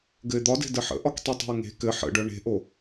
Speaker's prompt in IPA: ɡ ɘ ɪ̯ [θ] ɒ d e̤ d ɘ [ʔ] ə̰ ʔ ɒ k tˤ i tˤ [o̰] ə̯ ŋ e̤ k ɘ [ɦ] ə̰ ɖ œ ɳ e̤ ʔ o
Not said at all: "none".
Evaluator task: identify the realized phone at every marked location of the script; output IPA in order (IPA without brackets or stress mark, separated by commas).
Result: d̪, ħ, o̤, ħ